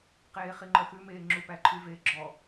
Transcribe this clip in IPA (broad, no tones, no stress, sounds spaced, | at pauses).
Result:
q eː χ i ŋ͡ǃ œ x ʉ m eː ŋ͡ǁ u p æ ǃʰ y v eː ɡ͡ǁ ɔ